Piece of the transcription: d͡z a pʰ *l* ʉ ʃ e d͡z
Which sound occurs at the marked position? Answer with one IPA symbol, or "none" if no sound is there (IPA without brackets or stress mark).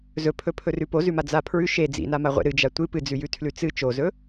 ɹ